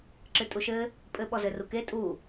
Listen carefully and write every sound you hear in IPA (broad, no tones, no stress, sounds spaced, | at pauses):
ǁ ɨ tʼ u ʃ ɘ | pʼ ɘ ɓ ɔ z ɘ r u k e tʼ u